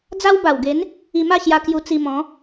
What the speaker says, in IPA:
d͡z a˦ w b a˨˩ w ɡ e˨˦ n | i˧ m a˥˧ ɕ j a˧ k j u˧ t͡s i˧ m ɔ̃˨˦

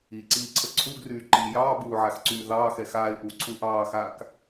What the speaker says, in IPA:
i ǀ iː ǀʰ ə ǀʰ u ɡ r yː ǃ i j ɑː b uː ʕ a x ǀ yː ð ɑː x ɛ x aː ɪ̯ ʔ uː ǀʰ uː ʔ ɑː x aː k

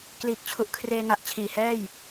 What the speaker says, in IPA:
k l iː˨˩ k̚ t͡ɕʰ u˨˩ ʔ kʰ r eː˧ ŋ a˨˩ ʔ t͡ɕʰ iː˨˩ h ɛː˥˩ j

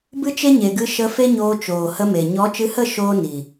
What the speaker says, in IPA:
b ɨ˦ t͡ʃ e˦ ɲ e˨ ɡ ɨ˧ ʃ ə˧ f e˦ ɲ oː˧ t͡ʃ oː˨ h ə˧ m e˨ ɲ ɔ˨˦ t͡ʃ ɨ˧ h ə˦˨ ʃ oː˦ n i˨

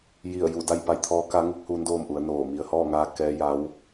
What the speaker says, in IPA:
j i˧˩ ə̯ j u˧˩ d a˥˨ j p a˧ j t̪ʰ ɔː˧˥ k a˧˥ ŋ u˧˥ k̚ h uː˧˥ n d oː˥˨ m ʔ u˩˧ ə̯ n oː˧˩ m i˩ ə̯ h ɔː˥˨ ŋ aː˧ k ɛː˧˥ j a˧˥ w

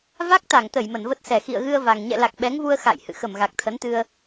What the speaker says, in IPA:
v a˦˥ k̚ t̪ a˧˩ ŋ t̪ ə˧˩ j m ə˧˩ n v ə˦˥ t̚ s ɛ˧˩ x ḭ˧˨ ə̯ ɣ ɨ˧ ə̯ v a˨˩ ŋ ɲ ɛ̰˧˨ l a˨˩ k̚ ɓ ɛ˨˦ ŋ v u˧ ə̯ x a̰˧˨ j h ɨ̰˧˨ x ə˧˩ m ɣ a˨˩ k̚ t̪ʰ ə˨˦ n t̪ ɨ˧ ə̯

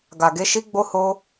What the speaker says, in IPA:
ɡ a˨ ɡ e˨˦ ʃ i˦ ɡ͡b o˦ h o˦

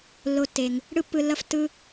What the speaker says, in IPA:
lː o˦ tː e˧ ŋ | ɽ ɯ˦ pː ɯ˧ lː ʌ˦ f tː ɯ˦

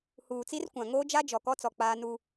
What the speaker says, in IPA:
h uː˨ t͡s i˦ r kʷ ã˨ ŋ oː˦ d͡ʒ a˦ d͡ʒ ɔ˨ k ɔ˦ t͡s ɔ˨ k͡p aː˦ n u˦

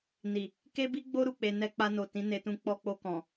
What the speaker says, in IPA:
n i˨ | k e˦ b i˦ ɡ͡b o˦ ɾ u˧ k͡p e˧ n ɛ˧ k͡p a˧ n o˨ t ĩ˨˦ n e˧ t ũ˧ k͡p ɔ˧ k͡p o˧ k ɔ̃˨

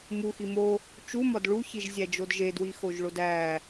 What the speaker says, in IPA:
m u x i m o | t͡ʃ u m ɒ d ɭ u ç i ʒ zʲ æ d͡ʒ o d ʒ e d w i x o ʒ ɭ o d æ

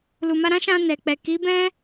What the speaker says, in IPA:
l u˨ m a˧ ɾ ã˦ ʃ ã˧ n ɛ˨ k͡p ɛ˨ k i˨˦ b ɛ̃˦

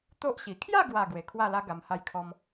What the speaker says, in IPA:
t̪ o˦ ʔ ɕ i˨˩ kʰ j a˥˧ ɡ w a˨˩ ɡ w e˨˩ kʰ w a˥˧ l a˦ ɡ a˧ m h a˦ j kʰ ɔ˦ m

